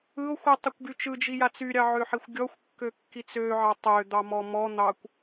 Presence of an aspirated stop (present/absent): absent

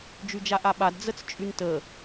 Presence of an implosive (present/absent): present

